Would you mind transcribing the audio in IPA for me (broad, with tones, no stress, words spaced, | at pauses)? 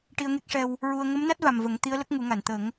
ʈi˧ə̯ŋe˦˥k̚ʂɛ˧w | ɹu˧ə̯ ŋə˧˥mna˦˥t̚va˨˩m və˨˩˦ŋ t̪i˧˥ə̯lə˦˥k̚ŋu˨˩˦ŋa˨˩˨n t̪ə˨˩˦ŋ